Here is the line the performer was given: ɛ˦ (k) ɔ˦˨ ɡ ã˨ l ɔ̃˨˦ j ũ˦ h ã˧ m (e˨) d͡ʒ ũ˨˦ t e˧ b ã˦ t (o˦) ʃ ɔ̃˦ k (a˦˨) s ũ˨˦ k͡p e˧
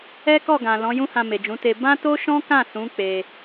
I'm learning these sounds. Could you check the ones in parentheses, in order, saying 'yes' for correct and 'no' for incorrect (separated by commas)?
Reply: yes, yes, yes, no